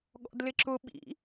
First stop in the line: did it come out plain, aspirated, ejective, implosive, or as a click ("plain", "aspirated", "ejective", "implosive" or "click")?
implosive